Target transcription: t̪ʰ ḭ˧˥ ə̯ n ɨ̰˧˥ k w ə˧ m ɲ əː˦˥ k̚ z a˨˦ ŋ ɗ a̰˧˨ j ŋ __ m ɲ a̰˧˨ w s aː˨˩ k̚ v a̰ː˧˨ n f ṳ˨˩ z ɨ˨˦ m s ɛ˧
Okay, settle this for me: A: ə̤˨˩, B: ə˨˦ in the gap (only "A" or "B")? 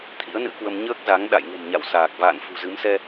A